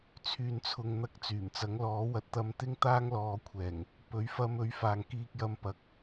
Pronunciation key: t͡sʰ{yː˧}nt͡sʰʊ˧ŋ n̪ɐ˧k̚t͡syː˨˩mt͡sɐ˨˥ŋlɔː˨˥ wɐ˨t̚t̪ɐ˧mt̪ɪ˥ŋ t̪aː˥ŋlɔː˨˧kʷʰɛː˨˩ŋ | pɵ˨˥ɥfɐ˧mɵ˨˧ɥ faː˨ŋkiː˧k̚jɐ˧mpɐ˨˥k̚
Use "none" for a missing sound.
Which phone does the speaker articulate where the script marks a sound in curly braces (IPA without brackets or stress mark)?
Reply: yː˧